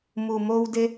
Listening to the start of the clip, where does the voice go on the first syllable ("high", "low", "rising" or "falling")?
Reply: low